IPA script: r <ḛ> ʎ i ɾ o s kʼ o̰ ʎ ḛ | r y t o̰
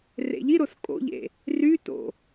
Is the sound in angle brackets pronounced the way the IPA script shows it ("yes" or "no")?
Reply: yes